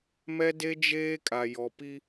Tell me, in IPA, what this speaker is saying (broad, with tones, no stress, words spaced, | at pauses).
mɛ˦de˦d͡ʒeː˦ kʼa˨jɔ˨pi˦